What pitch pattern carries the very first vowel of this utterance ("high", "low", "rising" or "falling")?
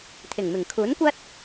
low